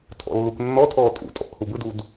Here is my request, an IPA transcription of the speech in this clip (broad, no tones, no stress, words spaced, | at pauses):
tʰɔ̰lːukʷnːɔtʰɔː tʼṵtʼɔ̰ʔ hubɯdud